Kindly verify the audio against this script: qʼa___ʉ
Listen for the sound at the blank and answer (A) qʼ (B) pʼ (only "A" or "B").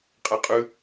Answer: A